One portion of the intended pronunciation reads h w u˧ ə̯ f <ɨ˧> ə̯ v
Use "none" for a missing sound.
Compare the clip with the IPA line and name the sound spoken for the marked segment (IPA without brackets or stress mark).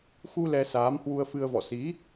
ɨ˧